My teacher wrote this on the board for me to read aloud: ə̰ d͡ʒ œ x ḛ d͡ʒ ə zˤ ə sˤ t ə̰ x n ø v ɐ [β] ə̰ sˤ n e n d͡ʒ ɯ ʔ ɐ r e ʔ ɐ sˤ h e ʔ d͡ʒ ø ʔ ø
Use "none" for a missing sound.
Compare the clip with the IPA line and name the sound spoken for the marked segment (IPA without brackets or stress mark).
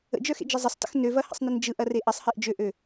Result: h